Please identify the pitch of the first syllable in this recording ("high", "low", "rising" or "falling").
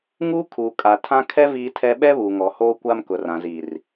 high